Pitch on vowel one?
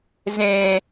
high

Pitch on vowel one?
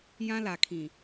high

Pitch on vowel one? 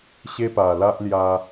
high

